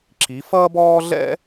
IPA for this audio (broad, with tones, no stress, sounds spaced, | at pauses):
ǁ i˩˧ f ʌː˥ b ɔː˥ ɮ ɛ̰˥